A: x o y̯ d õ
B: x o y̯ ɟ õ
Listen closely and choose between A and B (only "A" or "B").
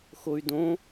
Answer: A